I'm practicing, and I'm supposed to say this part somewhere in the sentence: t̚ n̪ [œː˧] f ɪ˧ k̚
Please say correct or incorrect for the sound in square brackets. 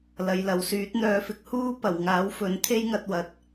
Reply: correct